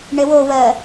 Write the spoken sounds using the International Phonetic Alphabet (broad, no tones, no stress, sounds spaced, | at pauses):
ɳ e w o w ɜ